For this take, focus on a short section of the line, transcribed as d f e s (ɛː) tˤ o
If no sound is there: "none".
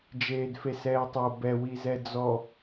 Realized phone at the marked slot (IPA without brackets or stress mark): ɛː